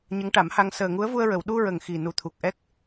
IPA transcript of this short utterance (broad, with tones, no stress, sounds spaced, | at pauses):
ɲ ə˧˥ ŋ ʈ a˨˩˦ m h a˧ ŋ s əː˨˩ ŋ u˧˥ ə̯ v u˧ ə̯ ɹ ə˨˩˨ w ɗ u˧ ɹ ə˨˩˨ ŋ x i˨˩ n u˨˩˦ t̪ʰ u˨˩ k̚ ʔ ɛ˦˥ k̚